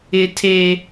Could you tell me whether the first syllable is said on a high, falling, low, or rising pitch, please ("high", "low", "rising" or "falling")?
high